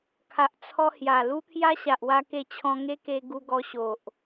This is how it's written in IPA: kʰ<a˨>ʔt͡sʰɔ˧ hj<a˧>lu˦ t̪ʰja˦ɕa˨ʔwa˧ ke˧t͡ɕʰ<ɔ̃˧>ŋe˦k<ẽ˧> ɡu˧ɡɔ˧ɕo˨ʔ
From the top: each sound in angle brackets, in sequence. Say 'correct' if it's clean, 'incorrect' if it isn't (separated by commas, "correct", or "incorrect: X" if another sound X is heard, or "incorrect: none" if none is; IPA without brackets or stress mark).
correct, incorrect: a˨˩, correct, incorrect: e˧